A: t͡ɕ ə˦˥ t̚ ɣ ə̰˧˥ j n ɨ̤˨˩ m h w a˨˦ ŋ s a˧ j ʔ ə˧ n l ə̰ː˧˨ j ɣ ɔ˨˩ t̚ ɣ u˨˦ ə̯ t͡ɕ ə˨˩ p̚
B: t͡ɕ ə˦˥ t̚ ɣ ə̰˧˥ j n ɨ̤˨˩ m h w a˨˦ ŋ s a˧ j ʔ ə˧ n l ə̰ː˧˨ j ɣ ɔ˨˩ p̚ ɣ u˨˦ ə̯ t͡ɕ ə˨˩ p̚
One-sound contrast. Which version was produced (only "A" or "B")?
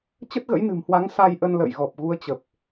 B